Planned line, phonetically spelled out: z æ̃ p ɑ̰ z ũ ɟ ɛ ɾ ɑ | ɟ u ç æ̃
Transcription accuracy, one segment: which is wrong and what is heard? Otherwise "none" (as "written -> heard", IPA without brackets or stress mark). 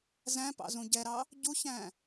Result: none